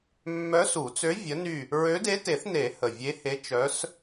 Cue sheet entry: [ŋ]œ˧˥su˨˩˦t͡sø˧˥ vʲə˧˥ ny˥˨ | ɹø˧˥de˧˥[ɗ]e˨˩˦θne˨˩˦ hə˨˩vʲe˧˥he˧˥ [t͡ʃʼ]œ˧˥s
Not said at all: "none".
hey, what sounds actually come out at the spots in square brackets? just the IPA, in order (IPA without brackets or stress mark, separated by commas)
mː, t, t͡ʃ